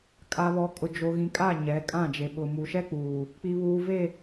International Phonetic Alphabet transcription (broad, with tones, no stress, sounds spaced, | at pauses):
kʼ a˨ β ɔ˨ kʼ ʊ˨ d͡ʒ o˨ ɣ ĩ˨ kʼ a˦˨ ɲ ɛ˨˦ kʼ ã˦˨ d͡ʒ e˨ ɓ ʊ˨ m u˨ ʃ ɛ˦ k͡p uː˨ | k͡p i˨ β uː˨ v e˦˨